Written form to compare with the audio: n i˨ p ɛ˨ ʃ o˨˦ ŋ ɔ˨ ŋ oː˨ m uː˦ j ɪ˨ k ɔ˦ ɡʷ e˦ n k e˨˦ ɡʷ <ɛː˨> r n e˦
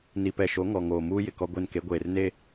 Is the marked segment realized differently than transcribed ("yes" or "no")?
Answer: yes